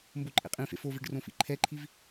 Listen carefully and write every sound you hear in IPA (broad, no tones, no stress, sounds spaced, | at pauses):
m b o ǃʼ ḛ qʼ ĩ f ḛ f o v e ɖ r õ f ḭ ǃʰ ɛ ǃʰ i v